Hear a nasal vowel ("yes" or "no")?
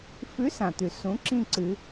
yes